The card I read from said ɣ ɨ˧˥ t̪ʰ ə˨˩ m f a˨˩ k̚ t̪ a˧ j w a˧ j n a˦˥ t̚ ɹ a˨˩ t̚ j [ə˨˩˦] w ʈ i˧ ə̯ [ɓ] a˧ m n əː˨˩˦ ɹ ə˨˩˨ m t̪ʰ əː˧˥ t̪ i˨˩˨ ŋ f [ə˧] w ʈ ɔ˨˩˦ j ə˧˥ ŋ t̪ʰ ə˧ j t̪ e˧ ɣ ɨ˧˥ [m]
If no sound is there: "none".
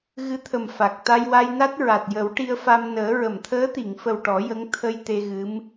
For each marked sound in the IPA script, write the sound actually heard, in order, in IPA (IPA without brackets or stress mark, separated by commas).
ə˨˩˦, f, ə˨˩, m